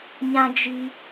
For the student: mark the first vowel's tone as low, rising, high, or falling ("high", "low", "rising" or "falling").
high